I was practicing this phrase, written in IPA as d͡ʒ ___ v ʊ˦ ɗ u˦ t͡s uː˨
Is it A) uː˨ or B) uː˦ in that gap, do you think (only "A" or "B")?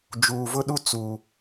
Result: A